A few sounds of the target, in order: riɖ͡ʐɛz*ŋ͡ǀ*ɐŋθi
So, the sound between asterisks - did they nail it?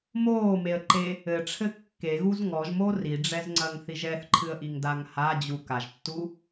yes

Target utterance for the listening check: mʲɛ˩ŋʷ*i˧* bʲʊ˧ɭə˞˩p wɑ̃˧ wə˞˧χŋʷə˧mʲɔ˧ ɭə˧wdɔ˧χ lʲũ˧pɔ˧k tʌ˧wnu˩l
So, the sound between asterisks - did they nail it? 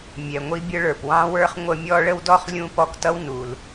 yes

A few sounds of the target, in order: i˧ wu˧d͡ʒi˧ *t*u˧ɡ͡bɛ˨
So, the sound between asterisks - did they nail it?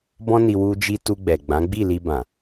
yes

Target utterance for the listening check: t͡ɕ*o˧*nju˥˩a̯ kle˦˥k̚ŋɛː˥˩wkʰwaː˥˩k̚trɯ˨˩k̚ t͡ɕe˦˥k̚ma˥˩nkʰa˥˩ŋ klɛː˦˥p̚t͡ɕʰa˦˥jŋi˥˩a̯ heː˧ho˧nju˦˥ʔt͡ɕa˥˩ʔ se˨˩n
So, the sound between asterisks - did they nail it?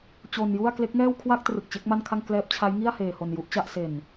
yes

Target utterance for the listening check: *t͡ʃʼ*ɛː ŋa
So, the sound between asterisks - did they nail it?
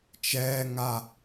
no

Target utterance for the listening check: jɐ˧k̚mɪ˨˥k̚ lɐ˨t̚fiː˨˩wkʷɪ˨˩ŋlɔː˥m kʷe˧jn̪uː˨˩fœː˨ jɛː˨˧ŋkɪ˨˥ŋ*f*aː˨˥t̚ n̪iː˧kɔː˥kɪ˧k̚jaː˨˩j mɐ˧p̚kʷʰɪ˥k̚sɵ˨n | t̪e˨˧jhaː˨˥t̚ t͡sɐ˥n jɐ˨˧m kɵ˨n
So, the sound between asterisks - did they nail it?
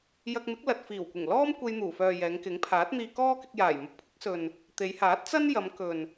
no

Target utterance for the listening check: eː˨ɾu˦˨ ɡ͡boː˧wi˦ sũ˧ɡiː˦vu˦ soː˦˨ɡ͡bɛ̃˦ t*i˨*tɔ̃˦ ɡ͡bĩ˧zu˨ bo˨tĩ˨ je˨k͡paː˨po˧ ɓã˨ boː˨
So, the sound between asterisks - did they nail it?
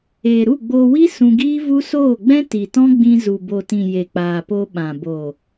yes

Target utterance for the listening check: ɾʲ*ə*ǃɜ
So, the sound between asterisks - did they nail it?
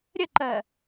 yes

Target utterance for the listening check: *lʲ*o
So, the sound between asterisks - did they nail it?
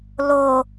no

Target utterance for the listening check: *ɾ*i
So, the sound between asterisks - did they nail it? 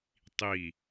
no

